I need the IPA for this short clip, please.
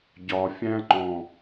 ɟ ɒ fʲ æ̃ ŋ͡ǃ ɔ̃

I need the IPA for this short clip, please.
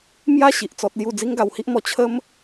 m j a˦ ɕ i˨ ʔ t͡s ɔ˦ t̚ l j u˥˧ d͡z i˦ ŋ ɡ a˧ w h i˦ ʔ m ɔ˧ t͡ɕʰ ə˦ m

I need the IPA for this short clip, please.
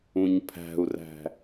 ũ ɲ pʰ æ̤ u̯ r æ̤

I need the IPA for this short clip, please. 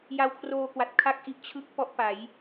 j a˧ w kʰ r oː˧ k w a˨˩ t̚ kʰ a˥˩ k̚ ʔ i˦˥ ʔ t͡ɕʰ ɯ˥˩ k̚ p ɔ˥˩ ʔ p a˩˦ j

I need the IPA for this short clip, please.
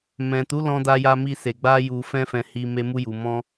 m ɛ̃˨ t u˨˦ l ɔ̃˧ d a˧ j a˧ m i˧ s e˨ ɡ͡b a˧ j u˨ f ɛ̃˧ f ɛ̃˨ h i˧ m e˧ m u˧ j u˨ m ɔ̃˧

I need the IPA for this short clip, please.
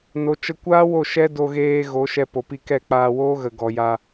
n o˨ t͡ʃ ə˧ kʷ aː˦ w o˦˨ ʃ ɛ˦ d o˧ ɣ eː˧ ɣ o˨˦ ʃ ɛ˧ p o˨ p i˧ k ɛ˦˨ k͡p aː˧ w oː˦ ɣ ə˨ ɡ ɔ˨ j a˧

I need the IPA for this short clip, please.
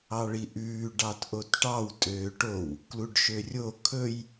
ɑ ɭ i ʔ ʉː ɖ ɑ t ʔ o t ʈ ɑ w tʼ øː ʈ o w | k l u ɖ ʃ ø rʲ o kʰ ɵ j

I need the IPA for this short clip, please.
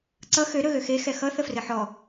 ǀ ʌ x ø ɾ ɵ ɣ ø x e x ɛ x ʌ θ ə f r ɘ ħ ɔ

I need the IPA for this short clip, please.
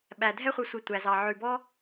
ɓ æ˨ dʱ ɛ˦ χʷ œ˧ sʷ i˨ tʷ æ˨ z ɑ˨ ʕ ʉ˨ b ɔ˦

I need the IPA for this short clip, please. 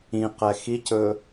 ĩ q ɛ x i c ɵ

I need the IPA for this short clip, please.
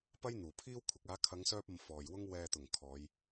p ɐ˥ j n̪ uː˨˩ pʰ iː˥ w kʷʰ ɪ˨˥ k̚ aː˨˥ kʰ ɐ˨˧ ŋ s œː˧ p̚ ɐ˨ m f ɔː˨ j w ʊ˥ ŋ w ɛː˨ t̪ ʊ˨˩ ŋ kʰ ɔː˨˧ j

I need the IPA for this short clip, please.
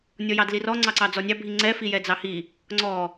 nʲ ɔ j ɑ d l i r ɔ ŋ͡ǀ ɑ ǀ ɑ d͡z ɔ nʲ ɑ bʱ i ŋ͡ǀ ɛ f i j ɛ d͡z ɑ h i | ŋ͡ǀ ɔ

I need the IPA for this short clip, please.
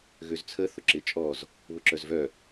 ɣ ø z t͡sʰ ə θ ʊ ǁ ɪ t͡ʃʼ ɔ z | β ʊ ǁ œ z v œ

